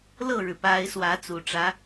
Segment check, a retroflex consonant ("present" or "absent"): present